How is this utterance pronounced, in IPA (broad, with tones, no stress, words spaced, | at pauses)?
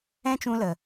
ɛ̃˦t͡ʃũ˧lə˨